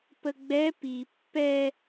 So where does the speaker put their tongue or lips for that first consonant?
lips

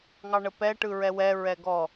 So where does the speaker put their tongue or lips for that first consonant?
velum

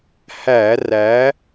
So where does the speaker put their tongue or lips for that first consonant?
throat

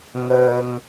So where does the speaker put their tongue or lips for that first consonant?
velum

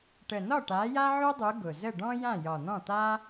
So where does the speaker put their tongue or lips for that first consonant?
retroflex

